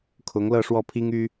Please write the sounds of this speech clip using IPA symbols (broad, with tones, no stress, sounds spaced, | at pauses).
kʰ ʊ˧˥ ŋ l ɤ˥˧ ʂ w ɔ˥˩ pʰ i˥ ŋ y˥